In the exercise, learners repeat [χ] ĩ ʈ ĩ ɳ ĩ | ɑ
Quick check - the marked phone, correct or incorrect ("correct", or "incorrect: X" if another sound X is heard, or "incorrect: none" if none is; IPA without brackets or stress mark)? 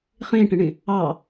correct